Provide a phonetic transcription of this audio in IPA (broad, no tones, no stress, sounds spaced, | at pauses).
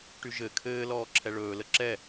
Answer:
ʈ y ʒ ɘ kʰ ɘː l ɔː ǁʰ ɛ ɭ ɵː l ə ǁ ɛ